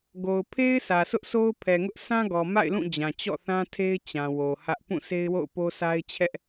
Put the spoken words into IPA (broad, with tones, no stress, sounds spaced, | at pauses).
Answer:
ɡ o˨ ʊ̯ pʰ e˦ ɪ̯ sʰ ä˨ s ʊ˦ ʔ sʰ o˦ ʊ̯ pʰ ɛ˨ ŋ ʊ˦ ʔ s ã˦ ɡ ɔ˨ m a̰˦˨ ɪ̯ l ũ˦˨ d͡ʑ ã˨ t͡ɕ ɔ̰˦˨ θ ã˦ tʰ e˦ ɪ̯ t͡ɕ ã˨ w o˨ h ä˦ ʔ p ũ˦˨ sʰ e˦ ɪ̯ w o̰˦˨ ʊ̯ p o˦ s a˦ ɪ̯ t͡ɕʰ ɛ˦ ʔ